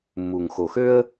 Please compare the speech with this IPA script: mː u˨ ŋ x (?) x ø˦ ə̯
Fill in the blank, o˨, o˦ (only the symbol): o˨